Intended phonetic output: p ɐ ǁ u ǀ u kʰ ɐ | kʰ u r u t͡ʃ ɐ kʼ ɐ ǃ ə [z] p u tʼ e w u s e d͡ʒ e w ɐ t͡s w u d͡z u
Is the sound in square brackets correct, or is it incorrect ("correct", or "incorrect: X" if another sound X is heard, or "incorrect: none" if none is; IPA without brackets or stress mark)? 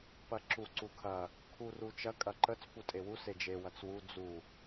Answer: incorrect: t͡s